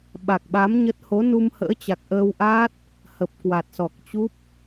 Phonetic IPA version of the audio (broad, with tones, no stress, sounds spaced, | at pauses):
ɓ a˨˩ k̚ ɓ a˨˦ m ɲ ə˦˥ t̚ h o˨˦ n u˧ m h ə̰ː˧˥ t͡ɕ a˨˩ k̚ ʔ əː˧ w ʔ aː˦˥ t̚ | h ə˨˩ p̚ k w a˨˩ t̚ s ɔ˨˩ k̚ t͡ɕ u˦˥ p̚